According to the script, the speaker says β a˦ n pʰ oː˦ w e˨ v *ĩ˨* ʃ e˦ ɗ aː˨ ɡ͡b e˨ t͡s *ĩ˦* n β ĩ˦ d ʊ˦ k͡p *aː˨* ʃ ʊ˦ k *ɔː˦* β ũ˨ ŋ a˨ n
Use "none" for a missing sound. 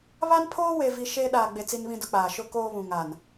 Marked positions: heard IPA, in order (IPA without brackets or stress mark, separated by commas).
i˨, i˦, aː˨, oː˦